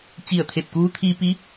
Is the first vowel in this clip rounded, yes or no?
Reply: no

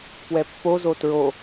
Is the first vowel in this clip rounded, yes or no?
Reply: no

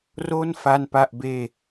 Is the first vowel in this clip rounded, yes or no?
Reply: yes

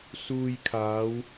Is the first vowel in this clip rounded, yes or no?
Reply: yes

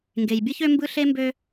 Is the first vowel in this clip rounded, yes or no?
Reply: no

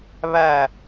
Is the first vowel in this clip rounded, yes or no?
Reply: no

